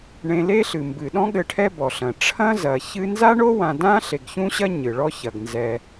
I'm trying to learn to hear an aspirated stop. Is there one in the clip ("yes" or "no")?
yes